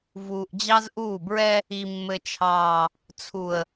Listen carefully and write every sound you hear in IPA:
v uː˨ ʔ d͡ʑ ɑ˦ z ʔ uː˦˨ b ɹ ɛ˦ | i˨ mː ɘ˨ t͡ʃʰ ɑː˨ | t͡sʰ u˨ ə̯

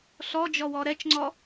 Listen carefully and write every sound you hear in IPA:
ɬ ɔ d͡ʒ ɔ w ɔ ɾ ɛ t͡ʃ ŋ͡ǀ ɔ

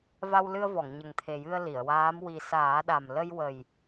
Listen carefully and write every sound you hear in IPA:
v a˧ w l ɨ˧ ə̯ v ɔ˨˩˨ ŋ ɲ ə˨˩ ŋ t̪ʰ e˨˩ j ɨ˧ ə̯ l i˨˩˨ ə̯ w aː˧˥ m w i˨˩ s aː˨˩˦ ɗ a˨˩ m l ə˧ j w ə˨˩ j

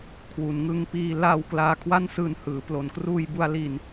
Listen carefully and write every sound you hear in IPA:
kʰ w u˩˦ n ŋ ɯ˧ ŋ p iː˧ l a˧ w k l aː˧ kʰ w a˥˩ n s ɯː˧ n h ɯː˩˦ p l o˩˦ n k r uː˧ j b u˧ a̯ l i˧ n

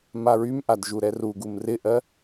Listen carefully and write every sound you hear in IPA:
m a ɹ y m ʔ a d ʒ u ɾ ɛ r u ɡ u m r ɪ ʔ ɜ

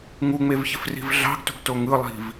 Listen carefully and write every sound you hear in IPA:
ŋ u ŋ͡m e v ç ɪ f r i̤ v ɮ ɑ̤ ɡ t ṳ ɡ t o ŋ ɯ lˠ i̤ v

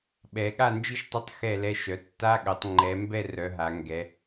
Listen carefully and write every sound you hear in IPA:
ɓ ɛ˩˧ ɠ a˥˨ n d͡ʒ i˥˨ ʃ tˤ ɛ˧˥˧ tˤ x ɛ˥˨ l ɛ˧˥˧ ʃ œ˩˧ tː a˧˥˧ ɠ œ˩˧ tˤ ŋ͡ǃ ɛ˩˧ m b ɛ˥˨ r œ˩˧ ɦ a˩˧ ŋ ɡ ɛ˩˧

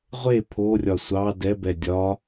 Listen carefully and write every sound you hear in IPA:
ʁʷ e pʰ o rʲ ɒ sʷ ɑ d ɛ b ɛ dʲ ɒ

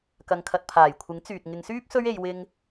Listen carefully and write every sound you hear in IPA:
k ɐ˨˧ ŋ kʰ ɐ˨ t̚ pʰ aː˨˩ j kʷʰ ɪ˨˥ ŋ t͡s yː˨ t̚ ŋ ɪ˨˧ ŋ s yː˥ p̚ s ɵ˥ ɥ e˧ j w ɪ˧ ŋ

